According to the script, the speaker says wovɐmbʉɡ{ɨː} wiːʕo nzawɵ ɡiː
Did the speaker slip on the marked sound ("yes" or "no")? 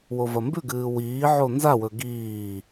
no